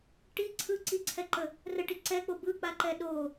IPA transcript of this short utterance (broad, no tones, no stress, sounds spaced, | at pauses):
ʈ i ǀʰ ɯ ǀ i ǀʰ ɛ ǃ ə | r ə ʈ i ǀ ɛ k͡p o b ɯ k͡p a ǃ ɛ ɗ o